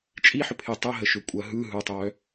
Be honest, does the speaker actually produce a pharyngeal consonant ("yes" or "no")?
yes